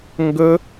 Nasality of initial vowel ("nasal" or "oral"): oral